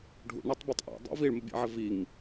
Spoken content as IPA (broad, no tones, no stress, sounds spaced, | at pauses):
ɖʱ ṵ ɳ ɛ tˤ b i tˤ ʔ ɛ̰ dˤ ḭ v i ɭ m ɘ bʲ ɛ̰ ʕ ɘ v i ŋ